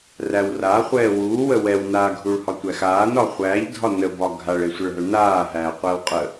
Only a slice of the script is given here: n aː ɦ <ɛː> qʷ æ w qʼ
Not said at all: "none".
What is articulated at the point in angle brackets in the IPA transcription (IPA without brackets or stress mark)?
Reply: æː